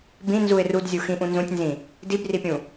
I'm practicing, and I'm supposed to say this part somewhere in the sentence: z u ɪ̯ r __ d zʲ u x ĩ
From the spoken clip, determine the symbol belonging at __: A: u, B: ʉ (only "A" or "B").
A